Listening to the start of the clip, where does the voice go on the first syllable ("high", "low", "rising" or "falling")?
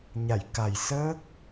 low